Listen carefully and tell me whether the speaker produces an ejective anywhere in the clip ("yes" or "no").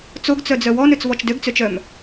no